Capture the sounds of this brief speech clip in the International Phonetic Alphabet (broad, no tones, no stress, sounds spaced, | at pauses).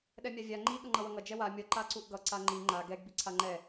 ɗ ɛ mʲ a vʲ a ŋ͡ǃ i ɠ ʌ ŋ͡ǃ ʌ w ʌ ŋ ʌ d͡ʒ ɛ w a mʲ ʌ ǃ a ǀ u ʔ ɡ ʌ ǀ a ŋ͡ǃ i ŋ͡ǃ a ɡ ɛ ɡ b i ǀʰ a ŋ͡ǃ ɛ